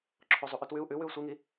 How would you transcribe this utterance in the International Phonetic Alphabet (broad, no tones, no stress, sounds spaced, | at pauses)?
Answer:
ǁʰ o zˤ u ʔ ʉ t w ʉ u̯ ʔ ʉ w ʉ u̯ sʷ i ŋ i